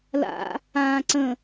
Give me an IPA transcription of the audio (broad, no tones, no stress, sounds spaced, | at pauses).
l a̰ | ãː ǀ ə̃